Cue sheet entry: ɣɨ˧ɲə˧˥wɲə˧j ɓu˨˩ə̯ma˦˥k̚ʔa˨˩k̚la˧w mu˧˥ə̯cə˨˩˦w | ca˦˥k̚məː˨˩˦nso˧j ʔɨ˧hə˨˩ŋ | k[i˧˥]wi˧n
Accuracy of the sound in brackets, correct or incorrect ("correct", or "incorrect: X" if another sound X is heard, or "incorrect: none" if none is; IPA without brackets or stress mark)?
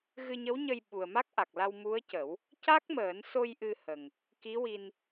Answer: correct